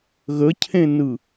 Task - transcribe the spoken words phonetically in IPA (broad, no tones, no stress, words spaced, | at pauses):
ɣəcʰẽnɯ